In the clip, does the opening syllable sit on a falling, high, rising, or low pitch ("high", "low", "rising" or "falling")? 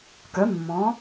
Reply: rising